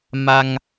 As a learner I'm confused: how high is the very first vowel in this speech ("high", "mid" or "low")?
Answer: low